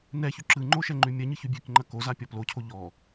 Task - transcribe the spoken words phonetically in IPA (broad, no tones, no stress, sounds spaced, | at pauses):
n ɛ ç ʉ ǁ ɯ ŋ͡ǃ o ʃ ɛ ŋ͡ǃ ʉ mʲ ɐ ɲ ɯ ç ʉ bʲ ʉ k ŋ͡ǃ ɐ k o z a pʲ ɔ p l o cʰ o ʎ ɔ